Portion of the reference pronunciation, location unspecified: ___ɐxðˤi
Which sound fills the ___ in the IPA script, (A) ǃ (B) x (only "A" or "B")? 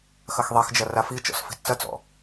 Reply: B